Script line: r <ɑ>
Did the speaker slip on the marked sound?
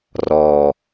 yes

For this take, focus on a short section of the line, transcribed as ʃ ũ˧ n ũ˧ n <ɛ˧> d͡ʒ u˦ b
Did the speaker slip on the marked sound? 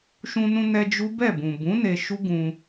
no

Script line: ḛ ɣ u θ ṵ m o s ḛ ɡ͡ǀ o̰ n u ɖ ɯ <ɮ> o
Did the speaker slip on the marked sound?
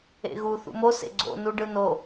yes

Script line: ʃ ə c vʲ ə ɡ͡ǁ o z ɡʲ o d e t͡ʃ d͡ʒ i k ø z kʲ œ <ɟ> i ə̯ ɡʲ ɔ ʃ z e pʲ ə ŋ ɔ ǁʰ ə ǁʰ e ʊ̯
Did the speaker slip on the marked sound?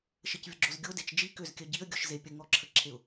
no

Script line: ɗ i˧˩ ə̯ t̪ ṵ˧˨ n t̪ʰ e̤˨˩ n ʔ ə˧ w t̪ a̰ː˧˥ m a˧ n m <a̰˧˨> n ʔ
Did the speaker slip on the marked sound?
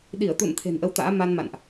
no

